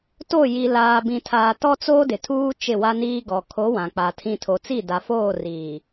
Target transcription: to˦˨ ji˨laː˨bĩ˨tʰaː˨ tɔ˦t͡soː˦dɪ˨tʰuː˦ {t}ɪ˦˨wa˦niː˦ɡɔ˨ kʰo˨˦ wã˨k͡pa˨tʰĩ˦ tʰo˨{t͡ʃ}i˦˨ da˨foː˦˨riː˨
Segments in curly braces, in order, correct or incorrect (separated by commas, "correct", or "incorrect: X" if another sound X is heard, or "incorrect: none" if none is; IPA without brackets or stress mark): incorrect: t͡ʃ, incorrect: t͡s